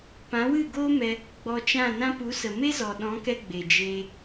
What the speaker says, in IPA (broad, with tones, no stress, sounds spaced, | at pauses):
p ã˨˦ w ɨ˦˨ ɡ oː˦ m ɛ˧ | ɡ͡b ɔ˧ t͡ʃ ã˦˨ n ã˦ p u˨˦ s ə˨ m e˦ z ɔ˨ ɗ ɔ̃˨˦ k ɛ˧ ɡ͡b e˨ d͡ʒ eː˧